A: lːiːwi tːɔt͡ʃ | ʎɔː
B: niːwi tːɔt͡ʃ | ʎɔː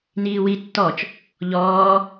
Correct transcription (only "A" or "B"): B